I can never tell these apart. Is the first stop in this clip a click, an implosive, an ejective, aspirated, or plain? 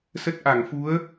plain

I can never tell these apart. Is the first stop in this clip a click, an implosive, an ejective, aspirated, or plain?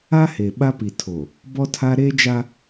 implosive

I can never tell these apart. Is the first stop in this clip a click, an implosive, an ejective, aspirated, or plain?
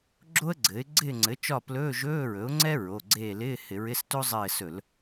click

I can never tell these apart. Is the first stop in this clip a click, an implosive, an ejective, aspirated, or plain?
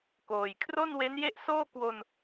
plain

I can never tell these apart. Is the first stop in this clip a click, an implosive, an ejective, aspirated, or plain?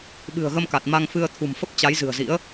implosive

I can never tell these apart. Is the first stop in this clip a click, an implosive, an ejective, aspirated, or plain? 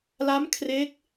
aspirated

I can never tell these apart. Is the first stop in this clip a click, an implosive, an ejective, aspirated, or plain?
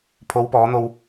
aspirated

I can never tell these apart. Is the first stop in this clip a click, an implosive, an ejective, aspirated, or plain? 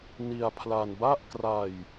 aspirated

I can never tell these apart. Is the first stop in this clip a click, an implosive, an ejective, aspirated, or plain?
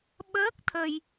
implosive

